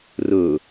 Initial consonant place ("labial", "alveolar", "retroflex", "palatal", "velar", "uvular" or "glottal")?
alveolar